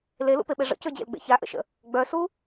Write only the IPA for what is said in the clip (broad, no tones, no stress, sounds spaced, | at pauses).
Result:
l e l ṵ p e ɓ e ʐ ə̰ c ø d͡ʑ ḛ l ɡ͡b ḛ ç a ʔ ə̰ ʃ ə̰ | ɡ͡b œ s u